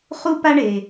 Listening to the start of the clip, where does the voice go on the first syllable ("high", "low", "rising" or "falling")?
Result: high